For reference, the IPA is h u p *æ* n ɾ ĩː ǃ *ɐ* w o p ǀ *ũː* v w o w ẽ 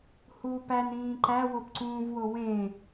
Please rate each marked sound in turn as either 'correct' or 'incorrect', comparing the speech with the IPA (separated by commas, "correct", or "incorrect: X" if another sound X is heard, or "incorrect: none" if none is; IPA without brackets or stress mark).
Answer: correct, incorrect: æ, correct